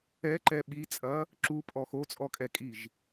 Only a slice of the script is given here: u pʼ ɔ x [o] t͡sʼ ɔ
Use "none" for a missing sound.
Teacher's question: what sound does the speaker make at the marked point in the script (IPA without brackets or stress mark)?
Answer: o